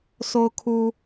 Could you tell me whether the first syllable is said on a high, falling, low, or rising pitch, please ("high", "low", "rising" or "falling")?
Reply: high